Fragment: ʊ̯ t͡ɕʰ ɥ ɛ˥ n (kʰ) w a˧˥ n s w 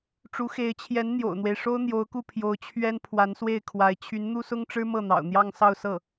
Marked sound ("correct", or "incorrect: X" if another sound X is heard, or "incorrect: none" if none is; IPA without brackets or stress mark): incorrect: pʰ